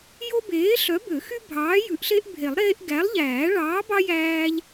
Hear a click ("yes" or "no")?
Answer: no